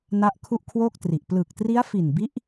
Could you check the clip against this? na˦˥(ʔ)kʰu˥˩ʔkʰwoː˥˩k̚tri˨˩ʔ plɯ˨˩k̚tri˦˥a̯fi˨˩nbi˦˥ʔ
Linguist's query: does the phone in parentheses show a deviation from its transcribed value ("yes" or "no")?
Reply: no